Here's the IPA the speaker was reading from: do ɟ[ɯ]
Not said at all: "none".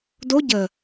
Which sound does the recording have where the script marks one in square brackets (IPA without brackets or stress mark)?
ə